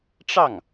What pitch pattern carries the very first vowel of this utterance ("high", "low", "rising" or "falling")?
falling